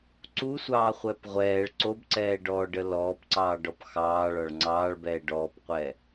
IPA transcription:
ǀ u sʷ ɑː χʷ ɛː p ʁʷ ɛː ɭ ǀ o b ǀ ɛː ɖ ɔː ɖ ə l ɔː p ǀ ɑː ɖ ɔ p x ɑː ɭ ɒ ɭ ŋ͡ǀ ɑː ɭ b ɛː ɖ ɔː p qʷ ɛ

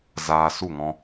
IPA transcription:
z aː˧ s u˦˨ ŋ ɔ̃˧

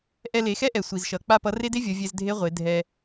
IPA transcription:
ʔ ɛ˧ l e˩˧ x ɛ˥ ʔ ɛ˩ sʷ i˩ z ʃ ʌ˩˧ k͡p a˥ p ʌ˧˥ r e˥ d e˥ vʲ ʌ˩˧ vʲ ɛ˧ z dʱ e˧˥ ʁʷ e˩˧ dʱ ɛ˧

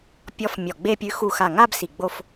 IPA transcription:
pʲ ɔ˧˥ f mʲ ɔ˧˩ ɡ͡b e˥˧ pʲ ʉ˧˥ x u˧˩ x a˧˩ ŋ a˥˧ b s i˧˩ ɡ͡b o˥˧ f

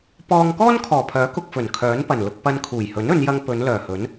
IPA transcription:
p ɔː˧ ŋ k ɔː˥ n kʰ ɔː˨˩ pʰ œː˨˥ k ʊ˨ k̚ f ɵ˨˩ n kʰ œː˨˥ n p ɐ˨˩ n l ʊ˧ k̚ p ɐ˧ n kʰ uː˨˩ j h ɵ˨˥ n ɵ˨˧ n j ɐ˧ ŋ p ɵ˨˧ n l œː˨˩ h ɵ˨˥ n

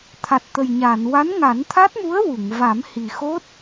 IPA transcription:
t̪ʰ a˨˩ t̚ t̪ ə˨˩ j ɲ aː˨˩˨ n w a˧˥ n ŋ a˨˩˦ n t̪ʰ a˦˥ t̚ m u˧˥ ə̯ w u˨˩˨ ŋ v a˨˩˦ m h i˨˩ x o˦˥ t̚

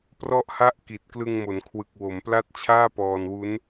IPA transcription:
p r ɔ˦˥ ʔ h a˦˥ ʔ k i˨˩ t̚ k l ɯ˧ ŋ m o˩˦ n kʰ w ɯ˨˩ k̚ w o˩˦ m p l a˥˩ t̚ t͡ɕʰ aː˥˩ p ɔː˧ n w u˦˥ n

